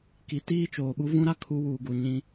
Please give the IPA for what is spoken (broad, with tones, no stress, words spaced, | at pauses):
ki˨tiː˦t͡ʃoː˨ɓu˦ vũ˦ɾa˦ kʰu˦ wuː˨ɡu˨ ɲĩ˦